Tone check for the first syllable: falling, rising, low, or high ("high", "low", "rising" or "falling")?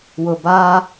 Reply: low